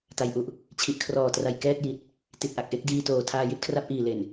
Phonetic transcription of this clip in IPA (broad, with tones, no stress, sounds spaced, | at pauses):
t a˧ j ʔ u˦˥ ʔ | t͡ɕʰ i˨˩ ʔ kʰ r ɔː˨˩ t r a˨˩ j k ɛː˥˩ t̚ j i˨˩ t̚ | t i˨˩ t̚ ʔ a˨˩ k̚ ʔ e˥˩ k̚ d iː˧ t oː˨˩ tʰ aː˧ j i˥˩ t̚ kʰ r a˥˩ p̚ ʔ iː˨˩ l e˨˩ n